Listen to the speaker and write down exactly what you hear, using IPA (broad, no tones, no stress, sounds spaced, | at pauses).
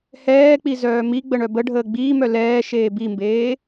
h ɛː k͡p i z œː m i ɡ͡b ə ɳ œ b ə ɖʱ əː ɡ͡b iː m œ l ɛː ʃ eː b i m b eː